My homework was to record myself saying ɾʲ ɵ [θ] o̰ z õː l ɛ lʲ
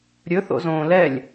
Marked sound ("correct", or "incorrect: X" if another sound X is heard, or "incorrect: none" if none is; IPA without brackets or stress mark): correct